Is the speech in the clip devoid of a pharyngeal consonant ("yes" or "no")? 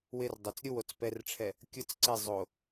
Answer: yes